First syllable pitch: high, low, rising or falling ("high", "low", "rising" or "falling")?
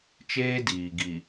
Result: high